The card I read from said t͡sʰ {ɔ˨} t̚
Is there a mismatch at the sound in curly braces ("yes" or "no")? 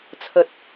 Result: yes